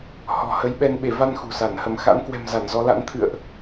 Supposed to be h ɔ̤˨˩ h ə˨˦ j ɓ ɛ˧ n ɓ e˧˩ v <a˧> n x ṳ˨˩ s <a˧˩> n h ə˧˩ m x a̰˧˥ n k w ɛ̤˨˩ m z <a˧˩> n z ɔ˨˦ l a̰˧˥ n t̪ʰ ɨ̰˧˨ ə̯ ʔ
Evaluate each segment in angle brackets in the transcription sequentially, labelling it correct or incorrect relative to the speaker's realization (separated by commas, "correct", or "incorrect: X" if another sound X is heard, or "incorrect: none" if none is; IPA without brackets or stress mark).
correct, correct, correct